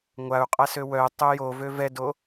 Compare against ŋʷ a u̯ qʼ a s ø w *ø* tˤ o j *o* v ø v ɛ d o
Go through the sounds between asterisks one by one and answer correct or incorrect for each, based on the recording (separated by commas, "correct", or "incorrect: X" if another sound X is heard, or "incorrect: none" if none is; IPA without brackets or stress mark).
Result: incorrect: œ, correct